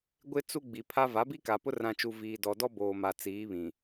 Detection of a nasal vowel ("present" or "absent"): present